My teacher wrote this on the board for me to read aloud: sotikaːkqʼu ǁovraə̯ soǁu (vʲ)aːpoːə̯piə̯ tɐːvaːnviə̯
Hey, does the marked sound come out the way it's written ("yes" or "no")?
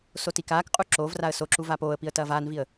no